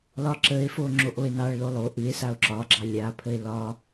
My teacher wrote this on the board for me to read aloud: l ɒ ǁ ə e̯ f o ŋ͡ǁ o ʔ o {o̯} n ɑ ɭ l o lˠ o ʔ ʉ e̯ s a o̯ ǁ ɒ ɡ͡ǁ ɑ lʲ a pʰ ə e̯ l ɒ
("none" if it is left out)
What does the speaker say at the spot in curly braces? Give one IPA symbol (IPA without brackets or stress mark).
e̯